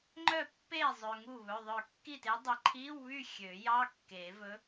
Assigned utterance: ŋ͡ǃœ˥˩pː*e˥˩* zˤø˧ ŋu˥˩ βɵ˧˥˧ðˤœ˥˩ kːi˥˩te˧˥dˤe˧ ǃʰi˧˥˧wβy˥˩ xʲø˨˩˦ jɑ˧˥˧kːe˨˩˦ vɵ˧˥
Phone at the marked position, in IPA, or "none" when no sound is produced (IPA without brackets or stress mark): e˥˩